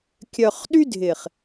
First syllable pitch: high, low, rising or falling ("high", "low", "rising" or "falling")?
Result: low